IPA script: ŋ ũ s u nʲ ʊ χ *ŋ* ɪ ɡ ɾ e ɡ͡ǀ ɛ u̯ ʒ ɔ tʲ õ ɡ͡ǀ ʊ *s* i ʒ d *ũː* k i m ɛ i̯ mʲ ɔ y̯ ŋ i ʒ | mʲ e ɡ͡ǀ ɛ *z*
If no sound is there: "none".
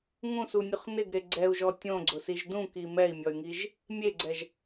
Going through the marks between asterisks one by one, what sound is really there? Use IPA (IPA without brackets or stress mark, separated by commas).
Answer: n, s, ũ, ʒ